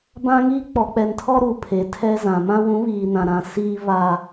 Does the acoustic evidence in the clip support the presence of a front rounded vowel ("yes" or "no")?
no